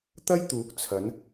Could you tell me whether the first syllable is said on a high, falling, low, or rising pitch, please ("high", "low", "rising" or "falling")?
high